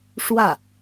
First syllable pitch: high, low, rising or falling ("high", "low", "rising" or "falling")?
falling